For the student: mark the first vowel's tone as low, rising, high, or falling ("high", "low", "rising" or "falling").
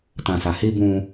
low